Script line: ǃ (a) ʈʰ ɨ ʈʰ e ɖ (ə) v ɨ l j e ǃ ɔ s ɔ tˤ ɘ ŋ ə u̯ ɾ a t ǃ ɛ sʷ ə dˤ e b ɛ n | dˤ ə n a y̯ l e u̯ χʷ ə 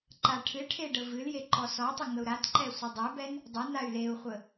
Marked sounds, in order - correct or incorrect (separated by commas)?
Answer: correct, correct